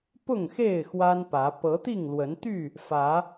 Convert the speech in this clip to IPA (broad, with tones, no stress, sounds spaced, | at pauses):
p ʊ˥˨ ŋ x e˥˨ ɪ̯ x w a˦ n p ä˨˦ p ɤ˨˦ t̪ i˥˨ ŋ l w ə˨˦ n t̪ y˥˨ | f ä˨˦